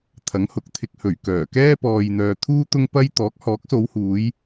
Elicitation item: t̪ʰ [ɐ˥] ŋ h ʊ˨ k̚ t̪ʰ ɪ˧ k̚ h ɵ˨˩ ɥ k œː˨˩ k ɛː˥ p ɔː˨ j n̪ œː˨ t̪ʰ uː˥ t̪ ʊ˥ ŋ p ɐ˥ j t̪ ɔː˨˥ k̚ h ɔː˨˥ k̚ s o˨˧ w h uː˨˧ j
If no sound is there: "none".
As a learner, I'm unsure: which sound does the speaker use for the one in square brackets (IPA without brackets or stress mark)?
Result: ɐ˨˥